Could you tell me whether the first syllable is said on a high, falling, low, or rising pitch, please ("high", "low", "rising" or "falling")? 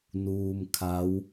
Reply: low